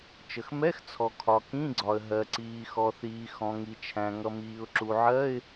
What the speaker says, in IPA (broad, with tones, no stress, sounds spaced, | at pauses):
t͡ʃ ə˩ x m ɛ˧˥˧ x t͡sʰ ɔ˩ kʰ ɒ˩ k ĩ˧˥˧ ɡ͡ǀ ɒ˩ ə̯ ɦ ɜ˩ ǀ iː˩ x ɔ˩ θ iː˩ x ɔ̃˩ ŋ i˩ t͡ʃʰ æ̃˩ ŋ ʌ˩ m iː˩ ʊ̯ ǁ u˩ ʕ ɜ˧˥˧ ɪ̯